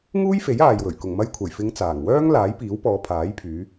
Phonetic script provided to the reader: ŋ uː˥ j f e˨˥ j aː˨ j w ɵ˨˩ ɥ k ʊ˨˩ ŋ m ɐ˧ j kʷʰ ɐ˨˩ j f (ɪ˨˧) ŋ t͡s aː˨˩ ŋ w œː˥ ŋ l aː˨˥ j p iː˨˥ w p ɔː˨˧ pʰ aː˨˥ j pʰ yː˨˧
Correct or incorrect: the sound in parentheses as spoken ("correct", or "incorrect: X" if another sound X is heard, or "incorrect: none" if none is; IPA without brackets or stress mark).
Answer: correct